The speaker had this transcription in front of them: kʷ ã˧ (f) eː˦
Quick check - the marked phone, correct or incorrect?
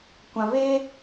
incorrect